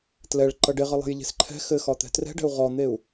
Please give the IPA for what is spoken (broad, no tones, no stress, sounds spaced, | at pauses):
t l ɛ ɭ ǃ ʌ ɖ e ʁ ʌ lˠ ɛ̤ j ʎ e̤ s ǃʰ ɛ̤ x ɘ x ɒ t̪ ɛ̤ t r ɛ̤ ɖ ɛ̤ u̯ ʁ ɔ n̪ e u̯